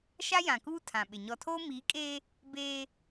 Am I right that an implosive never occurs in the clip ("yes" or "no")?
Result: no